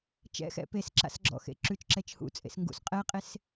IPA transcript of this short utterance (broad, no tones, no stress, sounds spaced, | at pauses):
t͡ʃ ɛ̰ x ɛ̰ p e s ǁ a̰ s ɡ͡ǁ ɔ̰ x ḛ ǁ ʉ t͡ʃ ǁ ɛ t͡ʃ h ṵ t͡sʼ ḛ s ŋ ɡ ṵ s qʼ ɛ qʼ e s